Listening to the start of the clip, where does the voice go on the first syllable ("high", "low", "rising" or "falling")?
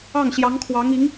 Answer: falling